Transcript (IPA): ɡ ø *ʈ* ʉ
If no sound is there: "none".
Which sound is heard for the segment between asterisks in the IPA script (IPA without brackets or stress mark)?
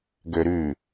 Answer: ɾ